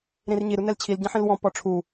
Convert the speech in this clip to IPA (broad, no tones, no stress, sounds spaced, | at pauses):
ɾ ĩ r ɲ i ɾ u n ɛ l t͡ɕʰ i l ɟ ɐ̃ ħ ĩ l w ɔ̃ p ɔ ʈ͡ʂʰ u